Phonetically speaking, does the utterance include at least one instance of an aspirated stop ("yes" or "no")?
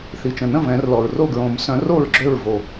no